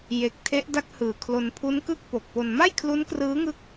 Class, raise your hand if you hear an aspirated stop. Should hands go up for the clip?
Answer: yes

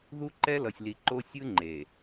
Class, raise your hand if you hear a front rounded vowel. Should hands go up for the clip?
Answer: no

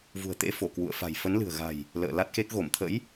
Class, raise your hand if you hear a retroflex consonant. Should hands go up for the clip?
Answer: no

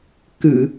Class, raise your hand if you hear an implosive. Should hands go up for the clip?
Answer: no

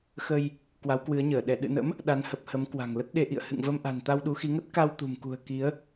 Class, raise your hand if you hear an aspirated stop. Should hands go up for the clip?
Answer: no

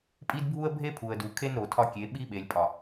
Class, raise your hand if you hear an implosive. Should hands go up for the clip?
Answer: yes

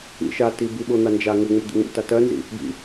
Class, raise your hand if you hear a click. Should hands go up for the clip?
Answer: no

